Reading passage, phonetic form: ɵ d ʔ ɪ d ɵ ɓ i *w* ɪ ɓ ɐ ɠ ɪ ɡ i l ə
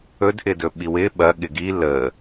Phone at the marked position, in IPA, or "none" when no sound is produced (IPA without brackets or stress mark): w